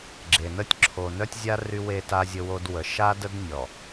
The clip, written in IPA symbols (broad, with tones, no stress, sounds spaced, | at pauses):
ɡ͡ǁ e˨ n ə˦ tʲ ǁʰ o˨ n œ˦ tʲ zʲ a˦ r y˦ w e˦ t a˦ zʲ ə˦ w o˦ d w ə˨ ʃ a˦ d ə˦ d nʲ ɔ˨